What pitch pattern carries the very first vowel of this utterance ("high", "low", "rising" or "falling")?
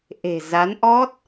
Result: low